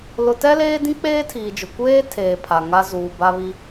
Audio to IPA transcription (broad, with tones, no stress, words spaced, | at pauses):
lʊ˨tɛ˦leː˦dĩ˦ k͡peː˦tʰiː˨d͡ʒʊ˨ kʷeː˦ tʰeː˨ pʰa˨ŋa˦ zuː˨ba˦βi˦